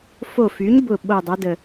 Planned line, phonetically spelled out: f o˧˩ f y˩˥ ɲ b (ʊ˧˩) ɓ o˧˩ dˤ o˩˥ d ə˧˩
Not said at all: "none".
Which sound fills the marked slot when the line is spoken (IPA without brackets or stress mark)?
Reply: ʊ˧˩